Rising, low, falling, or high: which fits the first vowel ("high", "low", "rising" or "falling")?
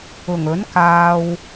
low